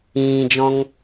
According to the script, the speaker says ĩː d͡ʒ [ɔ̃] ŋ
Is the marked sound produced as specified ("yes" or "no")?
yes